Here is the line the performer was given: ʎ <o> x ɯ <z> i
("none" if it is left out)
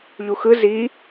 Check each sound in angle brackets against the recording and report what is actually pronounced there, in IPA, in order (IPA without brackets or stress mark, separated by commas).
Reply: u, z